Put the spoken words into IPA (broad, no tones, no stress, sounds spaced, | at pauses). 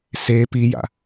s eː p i j a̰